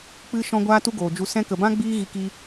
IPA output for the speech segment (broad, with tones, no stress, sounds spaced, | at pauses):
k͡p ɨ˧ ʃ ɔ̃˧ ɡʷ aː˦ t u˦ ɡ oː˨ d͡ʒ u˧ s ɛ̃˧ k ə˨ b ã˦ ɡ͡b iː˦ ɣ i˧ k iː˧